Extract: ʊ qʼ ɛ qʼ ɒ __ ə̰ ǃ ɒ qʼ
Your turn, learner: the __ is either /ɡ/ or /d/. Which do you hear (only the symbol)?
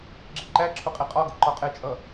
ɡ